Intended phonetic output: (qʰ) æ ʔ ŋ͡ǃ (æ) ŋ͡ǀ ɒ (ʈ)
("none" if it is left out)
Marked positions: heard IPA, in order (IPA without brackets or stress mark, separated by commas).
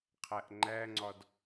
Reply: qʰ, æ, d